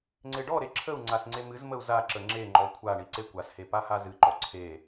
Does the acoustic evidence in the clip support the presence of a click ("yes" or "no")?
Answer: yes